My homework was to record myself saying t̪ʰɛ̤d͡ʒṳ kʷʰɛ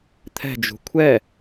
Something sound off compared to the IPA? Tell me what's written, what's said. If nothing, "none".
none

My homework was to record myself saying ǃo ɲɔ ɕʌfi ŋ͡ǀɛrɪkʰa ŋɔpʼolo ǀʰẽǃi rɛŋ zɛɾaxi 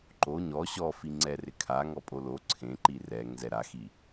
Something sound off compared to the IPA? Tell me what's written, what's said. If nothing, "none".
ʌ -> ɔ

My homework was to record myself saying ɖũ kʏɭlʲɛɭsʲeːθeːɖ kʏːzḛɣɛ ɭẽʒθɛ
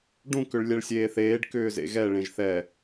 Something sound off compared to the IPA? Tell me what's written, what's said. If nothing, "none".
none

